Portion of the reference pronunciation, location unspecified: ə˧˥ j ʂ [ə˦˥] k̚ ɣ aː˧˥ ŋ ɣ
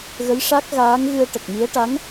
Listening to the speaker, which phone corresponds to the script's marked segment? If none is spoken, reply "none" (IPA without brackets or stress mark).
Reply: a˦˥